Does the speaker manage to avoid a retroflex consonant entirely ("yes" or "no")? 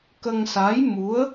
yes